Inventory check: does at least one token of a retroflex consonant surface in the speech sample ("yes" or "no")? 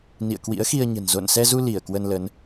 no